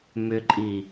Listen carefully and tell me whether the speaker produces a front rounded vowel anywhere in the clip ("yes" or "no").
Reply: yes